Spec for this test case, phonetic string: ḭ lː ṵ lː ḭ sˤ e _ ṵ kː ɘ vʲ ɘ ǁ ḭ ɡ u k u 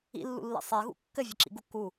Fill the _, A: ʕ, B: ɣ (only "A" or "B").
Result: B